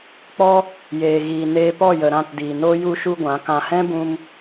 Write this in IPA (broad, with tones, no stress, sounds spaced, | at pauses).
k͡p ɔ˦ | j eː˨ ɣ iː˨ n eː˧ p ɔ˦˨ j ə˨ ɾ ã˦˨ t d iː˨ n oː˦ j u˦ ʃ u˦ ɡʷ ã˨˦ k ã˨ h ɛ̃˦ b ũ˧ m